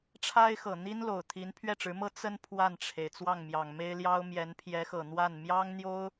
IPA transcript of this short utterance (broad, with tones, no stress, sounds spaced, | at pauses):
ʈ͡ʂʰ a˥ ɪ̯ x ɤ˨˩ n̪ i˥ n l o˨˩ ʊ̯ t̪ʰ i˧˥ n pʰ ɥ ɛ˥˩ ʈ͡ʂ ɻ̩˧˥ m ɤ˥ t͡s ə˥ n pʰ w a˥˩ n ʈ͡ʂʰ e˩ ɪ̯ t͡s w ɑ˥˩ ŋ m j ɑ˨˩ ŋ m e˥ ɪ̯ l j ɑ˥ ʊ̯ m j ɛ˧˥ n pʰ j ɛ˧˥ x ɤ˨˩ n̪ w a˥˩ n m j ɑ˥ ŋ n̪ j o˥ ʊ̯